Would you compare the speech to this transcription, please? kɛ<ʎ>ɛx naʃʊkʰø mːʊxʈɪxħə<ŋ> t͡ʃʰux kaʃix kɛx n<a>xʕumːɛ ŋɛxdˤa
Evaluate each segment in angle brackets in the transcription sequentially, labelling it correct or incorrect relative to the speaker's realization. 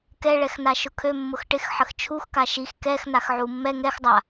incorrect, incorrect, correct

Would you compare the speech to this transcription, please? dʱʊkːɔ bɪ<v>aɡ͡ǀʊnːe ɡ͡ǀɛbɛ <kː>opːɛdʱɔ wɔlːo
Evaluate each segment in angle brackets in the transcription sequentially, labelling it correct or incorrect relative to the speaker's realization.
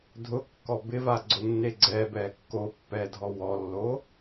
correct, correct

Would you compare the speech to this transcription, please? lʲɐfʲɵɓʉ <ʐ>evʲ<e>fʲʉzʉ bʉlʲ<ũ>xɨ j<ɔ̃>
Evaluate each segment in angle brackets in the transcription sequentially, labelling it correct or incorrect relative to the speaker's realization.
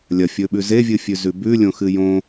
incorrect, incorrect, incorrect, incorrect

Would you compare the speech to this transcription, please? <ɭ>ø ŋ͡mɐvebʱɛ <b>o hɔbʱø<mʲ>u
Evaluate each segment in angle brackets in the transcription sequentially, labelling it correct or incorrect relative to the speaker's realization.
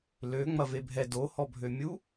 incorrect, incorrect, correct

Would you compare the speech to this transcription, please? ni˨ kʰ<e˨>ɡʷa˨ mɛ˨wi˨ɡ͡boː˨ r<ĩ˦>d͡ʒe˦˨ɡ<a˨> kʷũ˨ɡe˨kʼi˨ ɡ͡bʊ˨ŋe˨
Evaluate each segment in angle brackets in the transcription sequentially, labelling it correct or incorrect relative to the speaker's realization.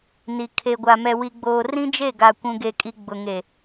correct, correct, correct

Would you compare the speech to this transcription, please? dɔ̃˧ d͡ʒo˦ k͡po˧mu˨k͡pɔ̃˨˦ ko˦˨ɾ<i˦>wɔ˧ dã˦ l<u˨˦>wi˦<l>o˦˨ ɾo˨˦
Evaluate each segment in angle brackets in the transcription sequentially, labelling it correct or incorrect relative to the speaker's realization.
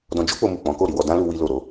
incorrect, incorrect, correct

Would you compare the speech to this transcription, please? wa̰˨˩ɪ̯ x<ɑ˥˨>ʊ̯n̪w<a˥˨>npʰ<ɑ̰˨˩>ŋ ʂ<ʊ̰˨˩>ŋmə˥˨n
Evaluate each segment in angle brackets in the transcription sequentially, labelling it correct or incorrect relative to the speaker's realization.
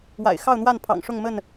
correct, correct, correct, incorrect

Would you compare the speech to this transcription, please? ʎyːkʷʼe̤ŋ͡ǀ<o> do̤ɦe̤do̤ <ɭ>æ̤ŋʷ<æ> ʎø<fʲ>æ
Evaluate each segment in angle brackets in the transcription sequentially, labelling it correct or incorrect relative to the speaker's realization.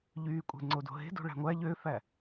correct, correct, correct, incorrect

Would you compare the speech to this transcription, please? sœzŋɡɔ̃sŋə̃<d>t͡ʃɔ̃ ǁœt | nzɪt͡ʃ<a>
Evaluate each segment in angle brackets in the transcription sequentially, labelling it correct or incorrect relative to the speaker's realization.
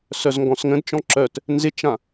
correct, incorrect

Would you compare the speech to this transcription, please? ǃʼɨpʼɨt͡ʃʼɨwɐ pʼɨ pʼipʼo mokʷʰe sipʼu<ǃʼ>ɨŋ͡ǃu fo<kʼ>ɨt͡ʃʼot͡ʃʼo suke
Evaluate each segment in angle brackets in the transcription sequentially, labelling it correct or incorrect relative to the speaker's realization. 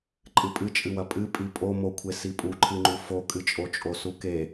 incorrect, correct

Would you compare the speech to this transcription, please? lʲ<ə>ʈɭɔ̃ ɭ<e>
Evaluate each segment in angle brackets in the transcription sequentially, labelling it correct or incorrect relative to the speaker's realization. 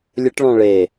correct, correct

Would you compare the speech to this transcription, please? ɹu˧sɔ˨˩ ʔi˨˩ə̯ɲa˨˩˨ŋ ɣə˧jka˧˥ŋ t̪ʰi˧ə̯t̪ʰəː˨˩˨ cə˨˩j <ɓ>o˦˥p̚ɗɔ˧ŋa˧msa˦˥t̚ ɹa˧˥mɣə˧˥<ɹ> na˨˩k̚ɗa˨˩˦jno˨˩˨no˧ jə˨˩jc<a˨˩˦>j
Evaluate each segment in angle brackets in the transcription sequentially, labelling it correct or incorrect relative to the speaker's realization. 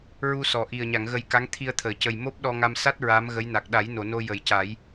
incorrect, incorrect, correct

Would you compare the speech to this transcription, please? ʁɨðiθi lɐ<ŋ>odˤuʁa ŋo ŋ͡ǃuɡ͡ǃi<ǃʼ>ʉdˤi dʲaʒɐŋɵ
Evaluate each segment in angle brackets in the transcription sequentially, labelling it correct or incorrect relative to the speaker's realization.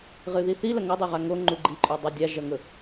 correct, correct

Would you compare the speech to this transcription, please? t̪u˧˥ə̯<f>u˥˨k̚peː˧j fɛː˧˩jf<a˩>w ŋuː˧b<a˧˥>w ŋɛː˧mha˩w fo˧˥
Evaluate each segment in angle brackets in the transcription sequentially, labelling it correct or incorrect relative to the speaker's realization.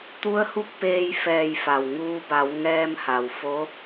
incorrect, correct, incorrect

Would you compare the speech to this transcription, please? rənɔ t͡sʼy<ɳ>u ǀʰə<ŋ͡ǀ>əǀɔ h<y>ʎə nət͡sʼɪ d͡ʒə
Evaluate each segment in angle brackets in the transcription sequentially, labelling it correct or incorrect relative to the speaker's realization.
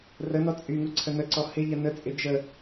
incorrect, incorrect, incorrect

